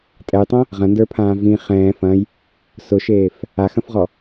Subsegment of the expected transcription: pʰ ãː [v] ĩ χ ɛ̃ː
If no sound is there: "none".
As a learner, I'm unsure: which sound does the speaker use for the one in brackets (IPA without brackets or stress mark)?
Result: v